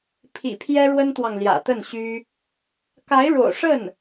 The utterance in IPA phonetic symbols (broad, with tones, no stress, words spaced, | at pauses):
pʰḭ˨˩pʰjɛ˥ɻwə˥nt̪wɑ˨ŋ ljä̰˨˩t̪ə˥˩nɕy˥ | ka˧˥ɪ̯ɻo̰˨˩ʊ̯ʂə˥˩n